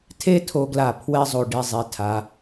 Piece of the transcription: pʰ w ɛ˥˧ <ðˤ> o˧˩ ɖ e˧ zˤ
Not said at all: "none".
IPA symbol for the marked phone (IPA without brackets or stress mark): zˤ